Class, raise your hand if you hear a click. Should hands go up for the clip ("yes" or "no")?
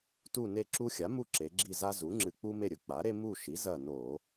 yes